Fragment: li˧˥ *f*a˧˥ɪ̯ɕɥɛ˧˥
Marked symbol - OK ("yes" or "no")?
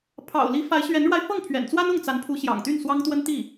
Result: yes